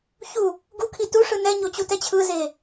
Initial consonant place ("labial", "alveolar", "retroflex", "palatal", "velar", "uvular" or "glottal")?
palatal